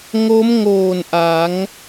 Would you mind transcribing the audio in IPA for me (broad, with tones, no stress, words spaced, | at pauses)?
ŋo˦˥mŋoː˨˩n ʔa˩˦ŋ